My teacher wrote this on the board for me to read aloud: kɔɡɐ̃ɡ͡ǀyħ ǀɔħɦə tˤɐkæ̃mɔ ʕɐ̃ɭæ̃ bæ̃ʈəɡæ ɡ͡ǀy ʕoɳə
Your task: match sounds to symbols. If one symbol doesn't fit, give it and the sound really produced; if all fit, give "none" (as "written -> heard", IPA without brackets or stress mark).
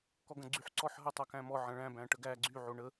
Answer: none